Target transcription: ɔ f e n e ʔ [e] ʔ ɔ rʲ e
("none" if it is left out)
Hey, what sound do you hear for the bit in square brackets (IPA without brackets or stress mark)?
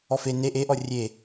e